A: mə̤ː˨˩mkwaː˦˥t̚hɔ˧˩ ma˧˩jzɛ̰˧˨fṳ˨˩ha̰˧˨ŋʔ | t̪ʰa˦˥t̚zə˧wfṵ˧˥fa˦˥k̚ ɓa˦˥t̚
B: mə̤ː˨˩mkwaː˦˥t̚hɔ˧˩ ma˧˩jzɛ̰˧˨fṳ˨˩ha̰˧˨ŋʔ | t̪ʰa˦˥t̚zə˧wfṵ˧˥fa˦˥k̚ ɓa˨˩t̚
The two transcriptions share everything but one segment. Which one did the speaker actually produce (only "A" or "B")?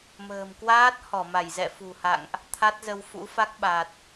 B